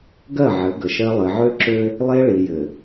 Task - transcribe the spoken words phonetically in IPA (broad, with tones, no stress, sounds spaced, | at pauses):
ɡ ɜ˦˨ ʕ ɘ˨˦ ɡ ə˨ ʃ ɜ˦ lˠ ɘ˨ ʕ ø˦ ǁ ø˦ | lˠ e˦ ɭ i˨ j ɘ˨